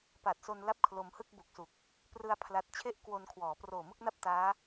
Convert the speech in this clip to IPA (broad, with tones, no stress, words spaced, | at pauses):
pa˨˩t̚so˧n la˥˩p̚kʰlo˧mhɯ˥˩k̚ bu˨˩k̚su˨˩k̚ | prɯ˧a̯ pʰla˦˥t̚ t͡ɕʰe˥˩ʔkwo˧nkʰwɔː˩˦ proː˨˩mɯ˥˩k̚na˥˩p̚ taː˦˥